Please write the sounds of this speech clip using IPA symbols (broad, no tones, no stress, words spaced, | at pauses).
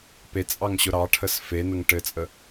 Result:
pet͡sʼɑŋɕʊ ɾɑʈʰəs fenəŋ ʈɘt͡sʼə